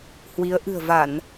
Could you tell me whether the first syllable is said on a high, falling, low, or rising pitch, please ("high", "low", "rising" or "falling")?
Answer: rising